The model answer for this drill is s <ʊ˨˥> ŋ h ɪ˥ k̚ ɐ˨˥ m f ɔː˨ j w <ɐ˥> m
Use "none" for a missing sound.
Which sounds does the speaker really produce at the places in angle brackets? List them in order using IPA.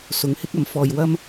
ʊ˨˥, ɐ˥

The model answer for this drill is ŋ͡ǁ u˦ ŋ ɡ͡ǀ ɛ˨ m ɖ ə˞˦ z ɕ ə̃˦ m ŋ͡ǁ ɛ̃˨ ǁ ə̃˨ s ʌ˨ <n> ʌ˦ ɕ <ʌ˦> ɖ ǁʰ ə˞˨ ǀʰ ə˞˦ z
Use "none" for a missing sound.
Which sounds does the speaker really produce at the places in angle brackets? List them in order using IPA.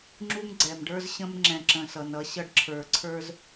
n, ʌ˦

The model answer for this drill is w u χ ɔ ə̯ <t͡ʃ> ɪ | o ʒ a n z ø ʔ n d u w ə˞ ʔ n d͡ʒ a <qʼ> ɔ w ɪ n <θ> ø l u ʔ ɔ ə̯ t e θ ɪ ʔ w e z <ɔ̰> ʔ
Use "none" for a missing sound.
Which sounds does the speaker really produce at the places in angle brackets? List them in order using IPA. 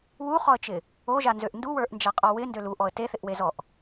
t͡ʃ, qʼ, d, ɔ

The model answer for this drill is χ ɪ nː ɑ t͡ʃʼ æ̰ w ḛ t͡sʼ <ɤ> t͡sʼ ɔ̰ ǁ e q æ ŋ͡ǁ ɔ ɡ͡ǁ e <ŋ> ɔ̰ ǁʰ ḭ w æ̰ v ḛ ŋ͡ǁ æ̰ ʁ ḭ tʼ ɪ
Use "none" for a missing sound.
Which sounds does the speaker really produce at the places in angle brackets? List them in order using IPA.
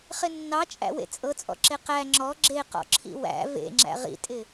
ɤ, q

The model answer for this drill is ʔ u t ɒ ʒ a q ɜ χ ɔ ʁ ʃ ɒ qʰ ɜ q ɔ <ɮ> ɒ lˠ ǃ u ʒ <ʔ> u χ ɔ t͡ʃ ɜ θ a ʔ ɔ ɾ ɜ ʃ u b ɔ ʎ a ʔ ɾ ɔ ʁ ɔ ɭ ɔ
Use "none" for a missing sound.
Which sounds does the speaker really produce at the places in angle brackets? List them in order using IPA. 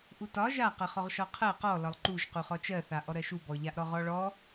l, q

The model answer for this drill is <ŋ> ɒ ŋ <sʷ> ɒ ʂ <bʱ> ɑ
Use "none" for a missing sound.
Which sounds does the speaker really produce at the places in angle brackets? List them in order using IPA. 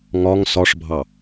ŋ, s, bʱ

